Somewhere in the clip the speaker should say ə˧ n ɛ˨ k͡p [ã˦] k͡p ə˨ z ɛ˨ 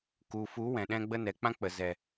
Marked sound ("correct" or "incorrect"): correct